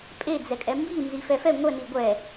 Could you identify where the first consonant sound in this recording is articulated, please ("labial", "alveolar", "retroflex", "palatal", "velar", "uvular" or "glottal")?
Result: labial